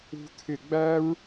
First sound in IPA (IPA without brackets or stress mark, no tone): ṳ